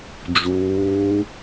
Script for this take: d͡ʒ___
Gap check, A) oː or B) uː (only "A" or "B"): B